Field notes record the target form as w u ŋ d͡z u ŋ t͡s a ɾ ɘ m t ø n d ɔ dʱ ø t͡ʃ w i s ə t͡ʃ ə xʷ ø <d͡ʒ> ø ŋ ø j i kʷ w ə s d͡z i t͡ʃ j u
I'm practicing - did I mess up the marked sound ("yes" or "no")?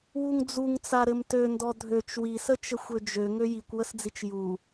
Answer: no